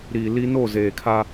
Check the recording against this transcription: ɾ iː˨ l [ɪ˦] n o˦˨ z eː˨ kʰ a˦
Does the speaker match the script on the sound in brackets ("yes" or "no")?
no